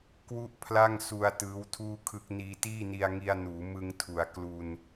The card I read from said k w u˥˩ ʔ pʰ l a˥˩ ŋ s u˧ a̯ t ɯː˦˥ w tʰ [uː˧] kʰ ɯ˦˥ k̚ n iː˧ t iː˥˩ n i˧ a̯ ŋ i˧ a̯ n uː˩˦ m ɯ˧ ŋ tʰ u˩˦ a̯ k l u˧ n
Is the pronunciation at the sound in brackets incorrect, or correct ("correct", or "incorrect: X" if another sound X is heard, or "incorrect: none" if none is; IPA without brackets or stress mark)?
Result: incorrect: uː˥˩